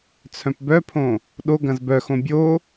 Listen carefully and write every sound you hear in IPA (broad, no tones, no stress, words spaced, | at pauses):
t͡sʰœ̃pbœpʰõ | ɗo ɡɐ̃zbœxõ bʲo